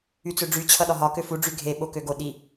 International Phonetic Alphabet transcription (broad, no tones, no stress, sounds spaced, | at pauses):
y t͡s ø ɖ͡ʐ y t͡ɕʰ ʌ ɗ ɒ ɦ ɒ k ø f u ɖ͡ʐ y ɡʱ e ɓ o k ø ɡ o ɗ i